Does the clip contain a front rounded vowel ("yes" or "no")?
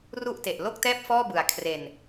no